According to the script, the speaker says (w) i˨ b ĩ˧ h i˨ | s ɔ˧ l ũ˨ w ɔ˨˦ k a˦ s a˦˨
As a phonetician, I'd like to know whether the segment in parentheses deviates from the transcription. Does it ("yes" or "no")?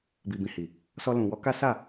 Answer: yes